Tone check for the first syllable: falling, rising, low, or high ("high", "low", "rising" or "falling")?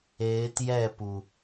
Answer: rising